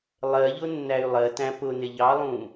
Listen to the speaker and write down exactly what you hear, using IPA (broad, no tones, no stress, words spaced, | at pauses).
lˠɜʎʊ nːæy̯lˠɜtæ̃ pʊnɪ ʎɑlˠũ